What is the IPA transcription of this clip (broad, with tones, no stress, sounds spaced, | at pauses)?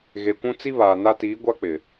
ɣ e˨ kʷ ũ˦ t͡s i˦ β aː˨ n a˦ t iː˨˦ ɡʷ a˦ k͡p ɪ˨